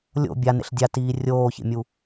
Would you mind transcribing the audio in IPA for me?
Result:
lʲ o̰ bʲ a n ḛ ɬ dʲ a t iː rʲ oː ç ḛ mʲ u

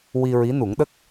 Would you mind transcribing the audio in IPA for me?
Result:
w i˧ ɹ i˧˥ n u˨˩˦ ŋ ɗ ə˦˥ k̚

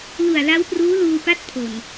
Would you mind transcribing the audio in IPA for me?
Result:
l u˨˩ a̯ l a˦˥ w p r uː˦˥ l uː˧ p a˦˥ t̚ pʰ o˨˩ n

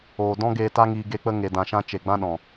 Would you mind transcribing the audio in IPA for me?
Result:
oː˨ d ɔ̃˦ ɡ eː˧ t a˦ ŋ iː˧ ɡ e˧ k͡p ə˧ ŋ e˨ d ã˨ ʃ ã˧ t͡ʃ e˨ ɡ͡b ã˦ ɗ ɔ̃˨

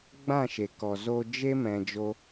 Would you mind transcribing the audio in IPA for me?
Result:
ɡ͡b ã˦˨ ʃ e˨ k ɔ˨ z o˧ d͡ʒ e˦ m ɛ̃˧ d͡ʒ o˦

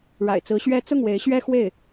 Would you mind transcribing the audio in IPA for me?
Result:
ɻ a̰˨˩ ɪ̯ t͡s ɹ̩˧˥ ɕ ɥ ɛ˥ t͡s ʊ˥˩ ŋ w e˧˥ ɪ̯ ɕ ɥ ɛ˥ x w e˥˩ ɪ̯

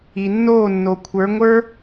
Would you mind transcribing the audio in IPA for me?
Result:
i˨ nː oː˦˨ nː o˨ kʷʰ ə˞˨˦ ŋʷ ə˞˦

